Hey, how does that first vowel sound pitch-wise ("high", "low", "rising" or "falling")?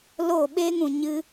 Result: falling